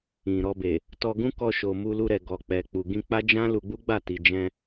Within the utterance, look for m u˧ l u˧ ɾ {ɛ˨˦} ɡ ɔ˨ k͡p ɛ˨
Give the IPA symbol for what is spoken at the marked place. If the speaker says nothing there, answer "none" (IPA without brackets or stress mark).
ɛ˨